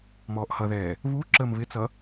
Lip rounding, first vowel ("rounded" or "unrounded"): rounded